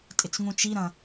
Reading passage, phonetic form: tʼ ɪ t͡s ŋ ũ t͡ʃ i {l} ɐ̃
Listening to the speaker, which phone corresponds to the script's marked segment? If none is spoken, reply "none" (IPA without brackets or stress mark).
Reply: ɾ